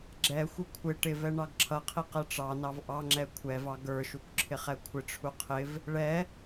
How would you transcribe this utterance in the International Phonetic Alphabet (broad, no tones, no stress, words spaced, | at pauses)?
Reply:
ɡ͡ǁɛxʷɪ kʷʰɪ ʈɪvɛ ɳɑɡǁʰʌqʰi qɛʈ͡ʂɑnɑv ʔɑŋ͡ǁɛ kʷʰɛvɑ ɡə˞ʃukʷ ǁʰɪχɛkʷʰɪʈ͡ʂʰu qʰɪv | ɭɛ